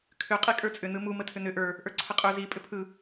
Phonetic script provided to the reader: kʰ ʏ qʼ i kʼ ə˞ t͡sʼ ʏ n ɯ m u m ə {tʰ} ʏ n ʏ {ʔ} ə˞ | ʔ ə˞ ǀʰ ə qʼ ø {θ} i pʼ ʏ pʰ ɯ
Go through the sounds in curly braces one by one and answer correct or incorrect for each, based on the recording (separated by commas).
correct, correct, incorrect